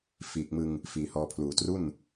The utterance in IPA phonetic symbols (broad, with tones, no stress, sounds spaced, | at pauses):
f iː˨˩ k̚ m ɯ˧ ŋ | f iː˨˩ h ɔː˧ pʰ l uː˨˩ t r u˥˩ n